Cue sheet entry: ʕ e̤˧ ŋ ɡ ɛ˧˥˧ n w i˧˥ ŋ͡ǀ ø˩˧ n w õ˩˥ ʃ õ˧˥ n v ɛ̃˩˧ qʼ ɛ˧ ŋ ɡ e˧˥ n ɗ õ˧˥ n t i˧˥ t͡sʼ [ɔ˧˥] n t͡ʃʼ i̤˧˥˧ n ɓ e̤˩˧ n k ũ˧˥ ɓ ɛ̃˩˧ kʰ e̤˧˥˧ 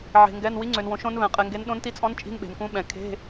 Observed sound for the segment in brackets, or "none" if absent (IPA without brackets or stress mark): ɔ̃˧˥